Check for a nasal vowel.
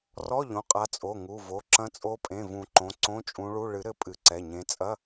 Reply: present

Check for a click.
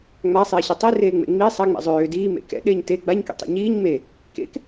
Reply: absent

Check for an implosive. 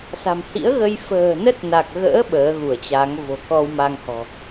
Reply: present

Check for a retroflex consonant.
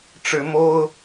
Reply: present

